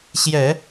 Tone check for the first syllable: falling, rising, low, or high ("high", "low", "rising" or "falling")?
low